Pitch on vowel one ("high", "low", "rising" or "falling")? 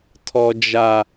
high